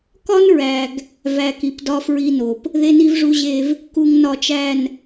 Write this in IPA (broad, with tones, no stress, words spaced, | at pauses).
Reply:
kɒ˦nɹæ˨ɡ | væ˨ki˨p dɒ˦fɹi˦no˨p | ðe˦ni˦vʐu˦ʑe˦v | ku˨ŋnɒ˨t͡ʃæ˨n